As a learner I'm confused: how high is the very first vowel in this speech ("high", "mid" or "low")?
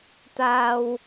low